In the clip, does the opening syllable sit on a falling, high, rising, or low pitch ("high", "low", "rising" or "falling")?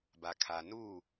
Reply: low